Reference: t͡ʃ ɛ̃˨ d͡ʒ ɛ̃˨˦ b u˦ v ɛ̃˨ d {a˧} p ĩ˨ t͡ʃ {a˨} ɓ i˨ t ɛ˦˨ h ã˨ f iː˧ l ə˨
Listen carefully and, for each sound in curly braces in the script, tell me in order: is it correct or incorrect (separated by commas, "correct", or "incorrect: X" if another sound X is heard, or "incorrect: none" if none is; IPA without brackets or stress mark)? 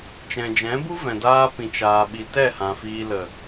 incorrect: aː˧, incorrect: aː˨